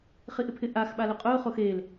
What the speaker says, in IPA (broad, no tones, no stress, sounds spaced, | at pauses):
χ i ʔ ɪ pʰ ɪ ʔ a x ɓ a l ʊ qʼ ʊː χ o x eː l